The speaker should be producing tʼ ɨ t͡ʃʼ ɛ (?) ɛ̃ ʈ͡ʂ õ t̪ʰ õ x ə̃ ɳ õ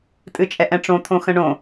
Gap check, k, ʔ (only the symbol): ʔ